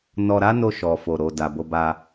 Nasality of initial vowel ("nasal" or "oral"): oral